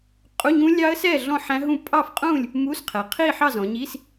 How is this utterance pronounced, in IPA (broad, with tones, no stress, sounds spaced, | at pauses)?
qʼ u˧˥˧ ɲ ũ˦˥ lʲ ɑ˦˥ ə̯ s ɛ˥˨ ɮ ɔ̃˥˨ ħ æ̃˦˥ ɦ ũ˥˨ pʼ ɑ˥˨ f qʼ ũ˥˨ lʲ | m u˧˥˧ s qʰ ɛ˩˧ qʰ i˥˨ ħ ɑ˥˨ z ɔ̃˩˧ ɲ i˧˥˧ s